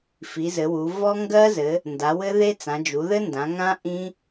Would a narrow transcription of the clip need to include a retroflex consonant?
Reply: no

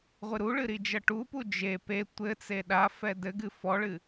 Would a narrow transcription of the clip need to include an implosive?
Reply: yes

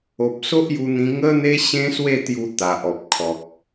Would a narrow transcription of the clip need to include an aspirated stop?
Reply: yes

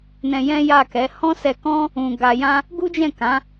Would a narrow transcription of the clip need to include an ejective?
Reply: no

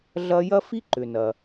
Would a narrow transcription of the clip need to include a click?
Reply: yes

